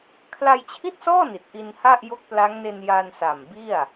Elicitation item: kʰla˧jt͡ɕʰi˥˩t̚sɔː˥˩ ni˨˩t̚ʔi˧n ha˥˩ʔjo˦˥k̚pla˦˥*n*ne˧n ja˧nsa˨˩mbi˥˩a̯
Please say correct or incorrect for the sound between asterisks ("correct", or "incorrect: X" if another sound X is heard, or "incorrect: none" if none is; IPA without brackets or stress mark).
incorrect: ŋ